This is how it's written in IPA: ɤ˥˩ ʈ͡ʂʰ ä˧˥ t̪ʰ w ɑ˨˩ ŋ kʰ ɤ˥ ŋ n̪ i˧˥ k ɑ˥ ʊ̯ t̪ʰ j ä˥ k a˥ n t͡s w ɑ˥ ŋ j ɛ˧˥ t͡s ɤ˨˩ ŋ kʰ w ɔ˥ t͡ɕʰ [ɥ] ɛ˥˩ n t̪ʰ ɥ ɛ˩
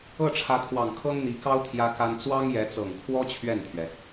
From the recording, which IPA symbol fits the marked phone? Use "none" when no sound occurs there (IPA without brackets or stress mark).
ɥ